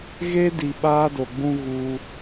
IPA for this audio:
ɣ e˦ d i˨ ɓ aː˦ d o˨ ɡ͡b ũ˦ ɣ uː˦

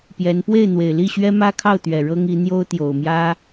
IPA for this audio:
p j ɛ˧˥ n p w e˥˩ ɪ̯ n̪ w e˨˩ ɪ̯ l i˥˩ ɕ ɥ ɛ˥ m ä˥ kʰ ɑ˥˩ ʊ̯ t̪ ɥ ɛ˨˩ ɻ ɤ˥ ŋ i˧˥ n̪ j o˥ ʊ̯ t̪ j o˨˩ ʊ̯ m j ä˥

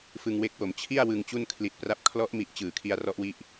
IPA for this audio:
f ɯ˧ ŋ w e˦˥ k̚ w o˩˦ m t͡ɕʰ i˥˩ a̯ w ɯ˧ ŋ t͡ɕ u˥˩ n kʰ l i˨˩ t̚ p r a˦˥ p̚ kʰ l ɔ˦˥ ʔ m i˨˩ ʔ t͡ɕ ɯː˩˦ kʰ i˧ a̯ r ɔ˦˥ ʔ w i˦˥ ʔ

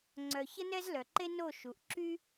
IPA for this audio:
ŋ͡ǀ œ˨ ç ə˦ n ɛ˦ z l œ˨ ǃ e˦ n o˦˨ ʃ u˨ ʔ ǁ y˦

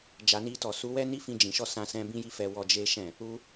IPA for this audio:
d͡ʒ a˨ n i˧ t ɔ˨ s u˨˦ w ɛ˦ n i˦ f ĩ˧ d͡ʒ ĩ˨ ʃ ɔ˧ s ã˧ s ɛ̃˧ b ĩ˦ j i˦ f ɛ˧ w ɔ˧ d͡ʒ e˦ ʃ ɛ̃˦˨ | u˧

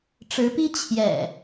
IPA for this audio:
ʈ͡ʂ ɻ̩˨˦ p i˦ t͡ɕʰ j ɛ̰˨˩

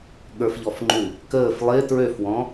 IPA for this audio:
ɠ ə˞ f ʎ ɔ f ŋ͡ǃ ʉ | k əː f lˠ ɪː t ɹ ø f w ɔ̃

